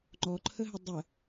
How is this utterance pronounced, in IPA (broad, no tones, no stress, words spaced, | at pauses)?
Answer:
ŋ͡ǃɔǃʰəɦə dˤə